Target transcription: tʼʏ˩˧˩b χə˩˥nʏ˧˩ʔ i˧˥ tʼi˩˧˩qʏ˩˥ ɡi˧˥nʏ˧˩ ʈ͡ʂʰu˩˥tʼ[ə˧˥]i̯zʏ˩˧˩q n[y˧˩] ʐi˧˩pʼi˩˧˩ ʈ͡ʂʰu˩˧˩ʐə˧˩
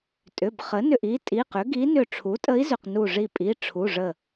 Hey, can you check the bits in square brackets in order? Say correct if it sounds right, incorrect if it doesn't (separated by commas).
correct, incorrect